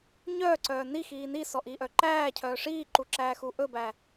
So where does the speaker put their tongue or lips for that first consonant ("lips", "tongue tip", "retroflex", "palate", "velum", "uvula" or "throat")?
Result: palate